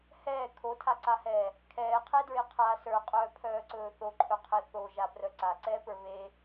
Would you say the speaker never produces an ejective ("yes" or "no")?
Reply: no